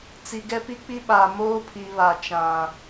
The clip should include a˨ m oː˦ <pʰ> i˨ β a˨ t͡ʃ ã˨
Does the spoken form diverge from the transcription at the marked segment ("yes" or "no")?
no